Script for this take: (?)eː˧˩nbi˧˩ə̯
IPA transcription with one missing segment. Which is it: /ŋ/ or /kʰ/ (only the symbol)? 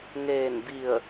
ŋ